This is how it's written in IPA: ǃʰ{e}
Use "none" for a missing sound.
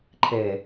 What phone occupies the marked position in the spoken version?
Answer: e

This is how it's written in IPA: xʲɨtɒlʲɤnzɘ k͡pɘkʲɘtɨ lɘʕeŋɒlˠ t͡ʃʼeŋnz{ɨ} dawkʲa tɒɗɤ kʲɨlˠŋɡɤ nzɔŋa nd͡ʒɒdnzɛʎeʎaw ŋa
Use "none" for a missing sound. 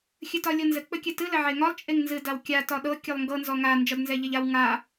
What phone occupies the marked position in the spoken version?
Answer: ɨ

